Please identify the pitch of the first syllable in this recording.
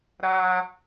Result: high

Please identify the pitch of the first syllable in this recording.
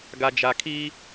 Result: low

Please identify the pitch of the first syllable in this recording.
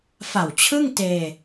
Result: low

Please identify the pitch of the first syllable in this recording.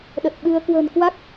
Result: low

